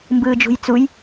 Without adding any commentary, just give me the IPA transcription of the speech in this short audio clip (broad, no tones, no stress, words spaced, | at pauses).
mbɯːd͡ʒṳjt͡suj